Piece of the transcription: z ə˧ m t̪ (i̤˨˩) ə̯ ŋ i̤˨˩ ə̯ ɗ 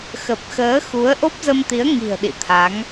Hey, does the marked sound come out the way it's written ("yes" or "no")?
no